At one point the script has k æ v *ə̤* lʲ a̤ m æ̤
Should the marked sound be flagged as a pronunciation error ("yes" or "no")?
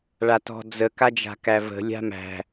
no